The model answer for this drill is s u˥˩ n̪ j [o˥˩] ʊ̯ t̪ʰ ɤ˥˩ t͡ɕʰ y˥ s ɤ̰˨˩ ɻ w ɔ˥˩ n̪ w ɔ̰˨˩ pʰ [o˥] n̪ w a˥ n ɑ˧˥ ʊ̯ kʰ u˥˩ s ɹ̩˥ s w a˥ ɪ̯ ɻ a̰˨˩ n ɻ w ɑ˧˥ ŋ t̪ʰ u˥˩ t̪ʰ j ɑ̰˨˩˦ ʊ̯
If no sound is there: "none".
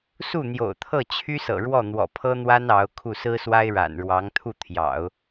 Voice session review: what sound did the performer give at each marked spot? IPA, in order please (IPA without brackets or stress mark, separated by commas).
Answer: o̰˨˩, ɤ˥